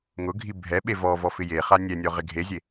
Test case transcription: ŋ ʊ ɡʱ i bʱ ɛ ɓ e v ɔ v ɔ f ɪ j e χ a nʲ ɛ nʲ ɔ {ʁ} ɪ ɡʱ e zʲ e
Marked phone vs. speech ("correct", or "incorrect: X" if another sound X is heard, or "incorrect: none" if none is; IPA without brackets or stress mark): correct